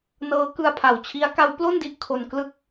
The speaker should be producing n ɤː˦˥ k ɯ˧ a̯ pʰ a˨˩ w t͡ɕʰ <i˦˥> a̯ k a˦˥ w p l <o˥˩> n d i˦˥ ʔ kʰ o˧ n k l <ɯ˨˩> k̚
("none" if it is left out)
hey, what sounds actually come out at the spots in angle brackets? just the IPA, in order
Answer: i˦˥, o˥˩, ɯ˥˩

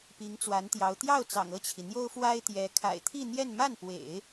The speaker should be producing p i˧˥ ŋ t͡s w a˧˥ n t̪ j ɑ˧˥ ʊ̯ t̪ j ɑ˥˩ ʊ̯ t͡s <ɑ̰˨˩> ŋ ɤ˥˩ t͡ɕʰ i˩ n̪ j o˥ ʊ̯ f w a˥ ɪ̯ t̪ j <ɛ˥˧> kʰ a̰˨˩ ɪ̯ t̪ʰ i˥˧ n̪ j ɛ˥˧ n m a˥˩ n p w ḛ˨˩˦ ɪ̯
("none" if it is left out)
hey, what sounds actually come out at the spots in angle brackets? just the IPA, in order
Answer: ɑ̰˨˩, ɛ˧˥

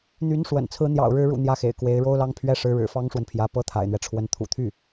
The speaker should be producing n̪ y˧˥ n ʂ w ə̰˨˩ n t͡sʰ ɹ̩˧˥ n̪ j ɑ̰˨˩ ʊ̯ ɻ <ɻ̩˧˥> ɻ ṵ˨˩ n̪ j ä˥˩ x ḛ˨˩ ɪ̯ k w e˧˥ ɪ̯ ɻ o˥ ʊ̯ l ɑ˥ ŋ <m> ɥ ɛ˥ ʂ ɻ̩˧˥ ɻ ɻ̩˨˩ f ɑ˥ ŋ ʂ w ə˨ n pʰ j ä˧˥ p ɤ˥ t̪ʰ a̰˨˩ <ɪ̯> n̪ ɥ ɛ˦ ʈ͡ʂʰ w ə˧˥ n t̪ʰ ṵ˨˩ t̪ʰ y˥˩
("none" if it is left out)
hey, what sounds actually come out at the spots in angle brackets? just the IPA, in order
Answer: ɻ̩˧˥, pʰ, ɪ̯

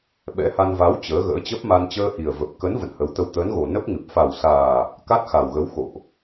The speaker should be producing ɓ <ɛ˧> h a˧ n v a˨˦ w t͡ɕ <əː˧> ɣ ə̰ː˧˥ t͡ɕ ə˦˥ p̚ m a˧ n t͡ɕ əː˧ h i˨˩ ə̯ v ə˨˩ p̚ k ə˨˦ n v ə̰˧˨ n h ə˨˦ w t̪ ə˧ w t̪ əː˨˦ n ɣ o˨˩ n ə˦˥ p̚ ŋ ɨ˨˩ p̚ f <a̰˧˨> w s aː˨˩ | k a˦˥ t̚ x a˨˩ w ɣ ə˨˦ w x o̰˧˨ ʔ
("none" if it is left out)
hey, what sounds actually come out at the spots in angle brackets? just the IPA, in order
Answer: ɛ̰˧˥, əː˨˦, a˨˩

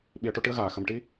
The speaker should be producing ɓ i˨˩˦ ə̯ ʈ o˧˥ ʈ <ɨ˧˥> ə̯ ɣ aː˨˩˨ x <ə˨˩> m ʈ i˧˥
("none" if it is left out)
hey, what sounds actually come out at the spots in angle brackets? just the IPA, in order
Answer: ɨ˧˥, ə˨˩

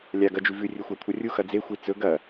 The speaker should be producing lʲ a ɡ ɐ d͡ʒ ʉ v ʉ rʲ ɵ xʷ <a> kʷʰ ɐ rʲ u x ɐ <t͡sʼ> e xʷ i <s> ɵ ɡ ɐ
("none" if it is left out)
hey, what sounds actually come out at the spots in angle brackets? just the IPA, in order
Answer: a, d͡z, t͡s

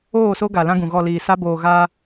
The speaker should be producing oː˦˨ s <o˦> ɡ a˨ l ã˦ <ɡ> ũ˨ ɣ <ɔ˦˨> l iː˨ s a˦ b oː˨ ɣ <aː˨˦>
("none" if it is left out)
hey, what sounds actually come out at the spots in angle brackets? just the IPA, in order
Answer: o˦, ɡ, ɔ˦˨, aː˦

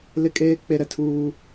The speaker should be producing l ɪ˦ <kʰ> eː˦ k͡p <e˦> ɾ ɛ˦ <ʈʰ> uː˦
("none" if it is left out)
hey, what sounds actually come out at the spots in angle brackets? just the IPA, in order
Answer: kʼ, e˦, tʰ

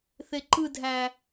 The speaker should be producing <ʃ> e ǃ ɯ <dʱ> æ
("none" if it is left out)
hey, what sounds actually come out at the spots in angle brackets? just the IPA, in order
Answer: θ, dʱ

